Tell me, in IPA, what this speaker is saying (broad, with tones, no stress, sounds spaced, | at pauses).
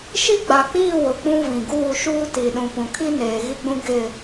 ʃ i˦ ɡ͡b a˨ k͡p iː˦˨ w ʊ˨ k͡p ũ˦ v ĩ˨ ɡ uː˦˨ ʃ uː˦ t i˨ ɗ ũ˨ p ũ˨ kʰ i˦ n eː˨ ɣ i˦ ɡ͡b ũ˦ ɡ ɪ˦˨